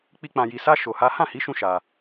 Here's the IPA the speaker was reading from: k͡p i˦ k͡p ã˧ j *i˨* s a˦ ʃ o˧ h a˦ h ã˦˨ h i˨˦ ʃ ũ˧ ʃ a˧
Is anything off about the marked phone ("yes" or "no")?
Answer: yes